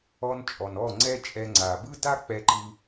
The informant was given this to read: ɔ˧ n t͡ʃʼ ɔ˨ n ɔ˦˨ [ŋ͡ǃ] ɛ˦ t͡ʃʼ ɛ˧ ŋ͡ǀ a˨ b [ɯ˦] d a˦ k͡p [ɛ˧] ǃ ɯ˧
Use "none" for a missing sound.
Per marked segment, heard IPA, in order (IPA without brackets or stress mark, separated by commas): ŋ͡ǀ, ɯ˦, ɛ˧